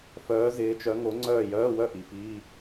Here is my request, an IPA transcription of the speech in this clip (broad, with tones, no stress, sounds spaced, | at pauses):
f œː˨˥ z ɪː˨˥ t͡ʃ œ˨˥ ŋ o˨˥ ŋ͡ǀ œː˥˨ j œː˧˥˧ w œ˥˨ ʔ i˨ f iː˧˥˧